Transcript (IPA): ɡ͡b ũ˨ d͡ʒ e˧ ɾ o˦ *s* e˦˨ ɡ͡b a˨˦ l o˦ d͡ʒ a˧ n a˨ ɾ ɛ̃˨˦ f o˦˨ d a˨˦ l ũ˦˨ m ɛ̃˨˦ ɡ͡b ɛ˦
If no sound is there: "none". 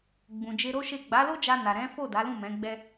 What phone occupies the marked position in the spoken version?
ʃ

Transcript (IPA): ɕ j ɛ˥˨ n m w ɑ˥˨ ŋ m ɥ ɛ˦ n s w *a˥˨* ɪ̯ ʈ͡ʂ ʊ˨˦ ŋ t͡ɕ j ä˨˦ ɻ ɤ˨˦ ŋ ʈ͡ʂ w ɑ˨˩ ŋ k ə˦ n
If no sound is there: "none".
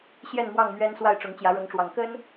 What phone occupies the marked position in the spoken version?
a˥˨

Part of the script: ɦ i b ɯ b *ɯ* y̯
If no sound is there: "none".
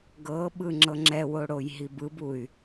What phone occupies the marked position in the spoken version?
u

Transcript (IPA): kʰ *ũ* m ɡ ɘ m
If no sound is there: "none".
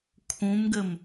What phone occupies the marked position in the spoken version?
ũ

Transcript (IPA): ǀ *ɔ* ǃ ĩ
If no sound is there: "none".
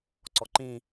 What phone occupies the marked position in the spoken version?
ɔ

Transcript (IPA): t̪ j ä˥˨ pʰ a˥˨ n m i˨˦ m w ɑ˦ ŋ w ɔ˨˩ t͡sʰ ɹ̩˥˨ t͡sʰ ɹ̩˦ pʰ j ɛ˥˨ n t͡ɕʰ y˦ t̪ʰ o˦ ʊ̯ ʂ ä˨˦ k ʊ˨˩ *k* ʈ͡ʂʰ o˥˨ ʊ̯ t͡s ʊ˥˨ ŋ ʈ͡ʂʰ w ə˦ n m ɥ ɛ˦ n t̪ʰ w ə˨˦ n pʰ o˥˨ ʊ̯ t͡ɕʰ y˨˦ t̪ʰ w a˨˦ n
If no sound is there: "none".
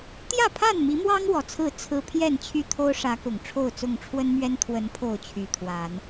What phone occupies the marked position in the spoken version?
ŋ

